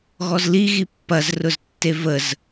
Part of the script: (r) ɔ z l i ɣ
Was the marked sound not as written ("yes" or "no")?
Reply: yes